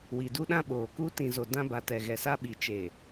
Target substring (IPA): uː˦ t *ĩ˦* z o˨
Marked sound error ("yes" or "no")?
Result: yes